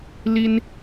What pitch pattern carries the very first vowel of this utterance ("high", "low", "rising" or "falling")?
high